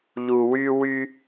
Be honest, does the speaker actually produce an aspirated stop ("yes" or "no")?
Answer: no